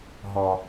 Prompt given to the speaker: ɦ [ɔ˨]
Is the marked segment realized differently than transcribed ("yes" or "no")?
no